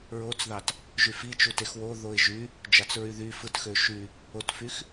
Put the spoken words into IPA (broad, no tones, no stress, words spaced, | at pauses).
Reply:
ɹot͡sðɑt | ʒyfit͡ʃu texwo ðoɪ̯ʒy | d͡ʒɑt͡sɹyðy fɯtxø ʃy | otfyx